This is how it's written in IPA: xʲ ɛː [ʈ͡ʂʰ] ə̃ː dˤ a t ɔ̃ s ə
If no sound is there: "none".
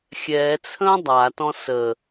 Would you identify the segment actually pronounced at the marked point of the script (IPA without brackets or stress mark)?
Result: t͡sʰ